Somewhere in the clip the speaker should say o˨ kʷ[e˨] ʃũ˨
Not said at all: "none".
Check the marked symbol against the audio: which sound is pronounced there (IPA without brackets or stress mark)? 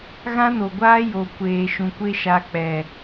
eː˨